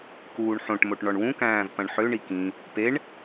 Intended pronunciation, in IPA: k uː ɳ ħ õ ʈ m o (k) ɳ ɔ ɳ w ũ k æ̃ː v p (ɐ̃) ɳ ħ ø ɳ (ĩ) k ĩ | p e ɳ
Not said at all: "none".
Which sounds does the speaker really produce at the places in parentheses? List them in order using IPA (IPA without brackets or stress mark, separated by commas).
ʈ, ɐ̃, i